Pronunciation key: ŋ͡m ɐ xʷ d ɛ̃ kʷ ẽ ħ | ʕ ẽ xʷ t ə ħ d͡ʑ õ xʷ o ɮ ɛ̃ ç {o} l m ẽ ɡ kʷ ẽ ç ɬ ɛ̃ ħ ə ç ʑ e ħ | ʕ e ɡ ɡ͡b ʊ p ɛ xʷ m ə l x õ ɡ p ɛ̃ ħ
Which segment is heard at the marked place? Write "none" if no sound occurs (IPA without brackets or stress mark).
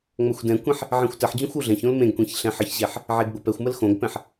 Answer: õ